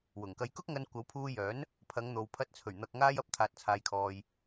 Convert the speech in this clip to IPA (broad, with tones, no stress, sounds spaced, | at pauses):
w ʊ˨˩ ŋ k ɐ˧ j k ʊ˥ k̚ ŋ ɐ˧ n kʷ ɐ˨˥ w pʰ uː˧ j œː˨˥ n | pʰ ɐ˨˧ ŋ n̪ o˨ w pʰ ɐ˧ t̚ t͡sʰ ɵ˨˩ ɥ n̪ ɐ˨ k̚ ŋ aː˧ j ɐ˧ p̚ t̪ʰ aː˨ t̚ t͡sʰ aː˨ j kʰ ɔː˨ j